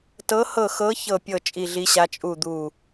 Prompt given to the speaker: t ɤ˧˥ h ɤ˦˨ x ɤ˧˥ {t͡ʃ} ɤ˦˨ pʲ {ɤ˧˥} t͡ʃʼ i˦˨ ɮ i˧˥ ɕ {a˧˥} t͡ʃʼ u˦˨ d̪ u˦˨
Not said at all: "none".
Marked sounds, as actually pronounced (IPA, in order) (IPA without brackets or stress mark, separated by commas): ç, ɤ˦˨, a˧˥